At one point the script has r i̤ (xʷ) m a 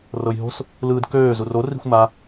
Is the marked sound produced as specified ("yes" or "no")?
yes